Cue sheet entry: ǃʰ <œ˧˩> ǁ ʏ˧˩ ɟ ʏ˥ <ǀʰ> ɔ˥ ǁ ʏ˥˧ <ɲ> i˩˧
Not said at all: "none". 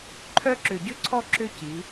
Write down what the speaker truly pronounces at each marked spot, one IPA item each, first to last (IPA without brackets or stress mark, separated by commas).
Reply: œ˥, ǀʰ, c